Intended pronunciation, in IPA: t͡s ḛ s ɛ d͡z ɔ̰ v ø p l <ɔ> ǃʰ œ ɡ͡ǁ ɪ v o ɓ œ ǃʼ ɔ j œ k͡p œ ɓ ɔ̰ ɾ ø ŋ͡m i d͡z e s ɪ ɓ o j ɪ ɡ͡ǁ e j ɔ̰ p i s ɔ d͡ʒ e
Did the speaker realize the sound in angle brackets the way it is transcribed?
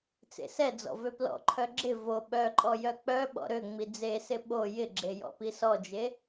no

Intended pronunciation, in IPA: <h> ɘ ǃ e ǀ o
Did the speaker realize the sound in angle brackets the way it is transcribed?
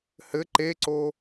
yes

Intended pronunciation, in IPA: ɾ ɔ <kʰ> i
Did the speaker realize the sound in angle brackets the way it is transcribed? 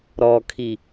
yes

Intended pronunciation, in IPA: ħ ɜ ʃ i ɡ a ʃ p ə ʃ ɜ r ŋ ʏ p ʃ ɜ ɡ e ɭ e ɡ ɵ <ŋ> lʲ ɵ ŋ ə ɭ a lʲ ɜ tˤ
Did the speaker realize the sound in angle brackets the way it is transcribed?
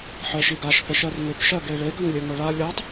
yes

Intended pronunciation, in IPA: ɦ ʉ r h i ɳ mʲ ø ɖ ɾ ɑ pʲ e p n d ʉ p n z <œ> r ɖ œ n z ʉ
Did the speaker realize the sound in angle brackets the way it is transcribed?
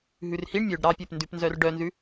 yes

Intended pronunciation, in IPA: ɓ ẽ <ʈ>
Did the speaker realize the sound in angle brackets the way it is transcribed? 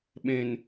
no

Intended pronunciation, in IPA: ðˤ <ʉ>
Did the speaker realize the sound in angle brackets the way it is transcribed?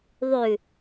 yes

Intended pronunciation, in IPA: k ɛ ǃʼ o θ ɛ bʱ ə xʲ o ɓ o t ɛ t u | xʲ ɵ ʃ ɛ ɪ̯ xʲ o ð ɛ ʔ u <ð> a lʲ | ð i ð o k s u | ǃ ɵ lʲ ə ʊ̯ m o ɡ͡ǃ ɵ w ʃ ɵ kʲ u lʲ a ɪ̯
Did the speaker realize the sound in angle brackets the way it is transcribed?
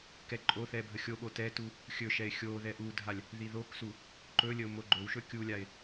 no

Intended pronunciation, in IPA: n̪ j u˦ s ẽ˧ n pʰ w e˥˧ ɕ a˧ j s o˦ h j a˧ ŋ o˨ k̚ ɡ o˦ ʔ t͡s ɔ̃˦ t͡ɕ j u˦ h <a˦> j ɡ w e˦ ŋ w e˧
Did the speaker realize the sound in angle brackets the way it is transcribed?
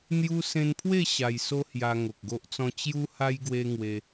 yes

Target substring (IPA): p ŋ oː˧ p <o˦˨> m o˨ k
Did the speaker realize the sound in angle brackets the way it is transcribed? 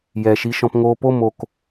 yes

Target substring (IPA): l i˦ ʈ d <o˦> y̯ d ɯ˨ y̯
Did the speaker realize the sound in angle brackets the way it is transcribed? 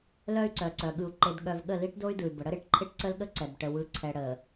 yes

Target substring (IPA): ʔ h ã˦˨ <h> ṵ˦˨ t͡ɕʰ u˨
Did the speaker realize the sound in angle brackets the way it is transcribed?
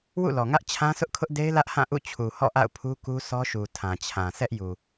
no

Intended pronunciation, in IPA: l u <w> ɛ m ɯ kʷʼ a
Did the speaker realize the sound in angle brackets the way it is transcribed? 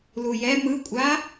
no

